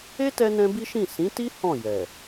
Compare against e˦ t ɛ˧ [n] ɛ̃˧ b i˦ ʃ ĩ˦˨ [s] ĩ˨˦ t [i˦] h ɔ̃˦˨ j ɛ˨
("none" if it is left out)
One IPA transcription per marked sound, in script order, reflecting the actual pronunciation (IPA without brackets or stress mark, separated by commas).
n, s, i˦